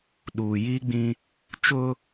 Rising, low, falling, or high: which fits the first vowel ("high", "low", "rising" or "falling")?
low